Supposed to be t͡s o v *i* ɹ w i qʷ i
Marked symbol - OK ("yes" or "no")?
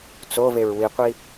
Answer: no